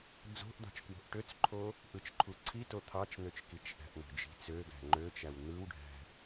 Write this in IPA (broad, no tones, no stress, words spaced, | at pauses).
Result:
d͡zo̤ʔd̪ɑ̤t͡ʃkwo̤ʔ ʈøt͡sǃʰo | ʔɯt͡ʃǃʰuǀʰito t̪ʰɑt͡ʃn̪øt͡ʃkit͡ʃ ʔæ̤ʔn̪o̤d͡ʒi̤ t͡søɡæ̤ ŋ͡ǃøt͡ʃæw n̪ɯwɖʱæ̤